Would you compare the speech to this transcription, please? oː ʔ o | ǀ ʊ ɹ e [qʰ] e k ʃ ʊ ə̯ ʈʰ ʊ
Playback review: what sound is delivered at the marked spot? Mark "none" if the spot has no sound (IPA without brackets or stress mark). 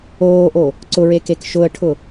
k